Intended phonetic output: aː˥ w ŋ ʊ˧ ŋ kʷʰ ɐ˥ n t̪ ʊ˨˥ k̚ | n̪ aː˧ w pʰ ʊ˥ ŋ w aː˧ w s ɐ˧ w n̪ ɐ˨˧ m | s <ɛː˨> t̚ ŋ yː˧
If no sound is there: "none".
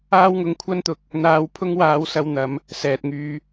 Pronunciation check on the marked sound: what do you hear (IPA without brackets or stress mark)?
ɛː˨